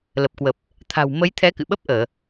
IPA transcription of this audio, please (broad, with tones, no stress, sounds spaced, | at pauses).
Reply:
l ə˨˩ p̚ k w ə˨˩ p̚ | t̪ʰ a̤˨˩ w m ə˨˦ j t̪ʰ ɛ˨˦ k ɨ̰˧˨ ɓ ə˦˥ p̚ ʔ əː˧˩˨